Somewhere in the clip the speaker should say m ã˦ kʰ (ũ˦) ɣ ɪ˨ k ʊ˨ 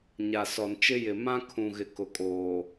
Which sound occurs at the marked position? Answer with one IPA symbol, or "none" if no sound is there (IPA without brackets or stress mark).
ũ˨